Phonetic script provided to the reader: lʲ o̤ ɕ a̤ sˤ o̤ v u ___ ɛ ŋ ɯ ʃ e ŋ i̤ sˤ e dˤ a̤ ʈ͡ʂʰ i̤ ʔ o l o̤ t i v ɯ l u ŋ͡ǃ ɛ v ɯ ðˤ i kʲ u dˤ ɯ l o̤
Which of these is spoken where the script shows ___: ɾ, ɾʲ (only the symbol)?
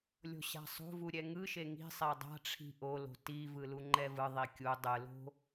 ɾʲ